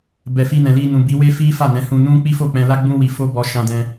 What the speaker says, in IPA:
b ɛ˨ f i˧ n ɛ̃˨ l i˧ n ũ˨ b i˨˦ w e˦ f i˦ f a˦˨ n ɛ̃˨˦ h ũ˧ n ũ˦ k͡p i˦ f o˦˨ k͡p ɛ̃˧ l a˦ ɡ͡b ũ˦ w i˧ f o˦ b ɔ˧ ʃ ã˧ d ɛ̃˧

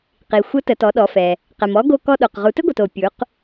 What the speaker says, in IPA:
q i˩ xʷ ə˧˥ t ə˩˧ t ɔ˩˧ ɗ ɔ˩˧ f ɛ˩ | q ɛ˩ m ɔ˧˥ ɡ o˧ k ɔ˧ ɗ o˩ q ʁ u˩˧ t ɘ˥ ɡʷ ɛ˩ t o˩ pʲ u˩˧ q

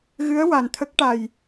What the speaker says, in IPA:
ɣ ɨ˧˥ ə̯ w a˨˩ n t̪ʰ ə˦˥ k̚ ʈ a˨˩ j

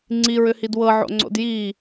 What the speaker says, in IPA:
ŋ͡ǀ i ɹ ʏ h i d w ɤ ʕ o̰ ŋ͡ǀ o̰ d j i

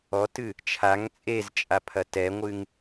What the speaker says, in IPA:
ɔ t ɨ | t͡ʃʰ a ŋ t͡sʼ e z t͡ʃʼ a pʰ ɐ t ɛ ŋʷ ɨ ŋ

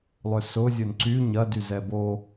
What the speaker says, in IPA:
lˠ ʏ s ʊ zʲ ʊ n ǀ y ɲ ɐ d y z ɛ b o

